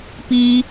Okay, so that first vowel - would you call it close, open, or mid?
close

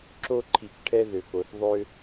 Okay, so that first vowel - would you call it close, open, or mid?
mid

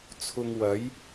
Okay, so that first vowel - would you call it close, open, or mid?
close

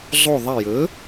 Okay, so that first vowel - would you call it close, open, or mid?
close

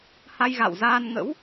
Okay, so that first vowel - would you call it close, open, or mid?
open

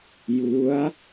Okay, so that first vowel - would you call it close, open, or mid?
close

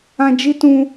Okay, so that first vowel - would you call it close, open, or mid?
open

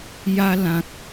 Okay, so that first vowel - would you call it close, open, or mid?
open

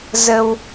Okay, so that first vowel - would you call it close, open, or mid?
mid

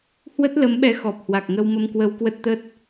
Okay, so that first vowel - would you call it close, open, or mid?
mid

